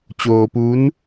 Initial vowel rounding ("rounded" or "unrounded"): rounded